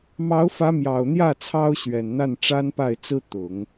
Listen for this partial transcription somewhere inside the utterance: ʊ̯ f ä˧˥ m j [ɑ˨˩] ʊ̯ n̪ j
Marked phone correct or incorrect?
correct